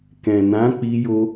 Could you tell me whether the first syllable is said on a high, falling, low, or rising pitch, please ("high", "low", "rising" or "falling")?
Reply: low